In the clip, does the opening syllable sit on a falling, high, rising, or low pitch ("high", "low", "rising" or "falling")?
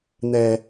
low